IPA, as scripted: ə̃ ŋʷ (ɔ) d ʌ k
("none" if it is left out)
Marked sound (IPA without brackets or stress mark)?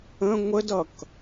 ə